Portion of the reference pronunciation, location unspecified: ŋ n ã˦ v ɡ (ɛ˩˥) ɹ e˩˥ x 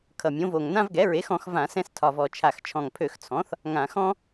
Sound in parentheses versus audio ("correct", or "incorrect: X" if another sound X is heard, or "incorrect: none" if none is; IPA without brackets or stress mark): correct